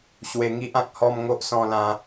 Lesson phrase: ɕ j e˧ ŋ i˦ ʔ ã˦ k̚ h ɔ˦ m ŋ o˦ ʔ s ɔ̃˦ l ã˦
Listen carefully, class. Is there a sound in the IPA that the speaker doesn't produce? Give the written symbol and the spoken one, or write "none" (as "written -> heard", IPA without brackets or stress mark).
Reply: j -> w